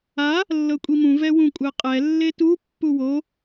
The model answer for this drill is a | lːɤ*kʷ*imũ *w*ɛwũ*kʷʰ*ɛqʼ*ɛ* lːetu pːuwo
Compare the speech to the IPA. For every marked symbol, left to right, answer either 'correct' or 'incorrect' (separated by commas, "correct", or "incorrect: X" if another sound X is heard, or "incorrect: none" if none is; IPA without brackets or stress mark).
incorrect: kʷʼ, incorrect: v, incorrect: kʷʼ, correct